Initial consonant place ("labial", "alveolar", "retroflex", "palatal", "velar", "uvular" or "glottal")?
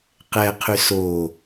uvular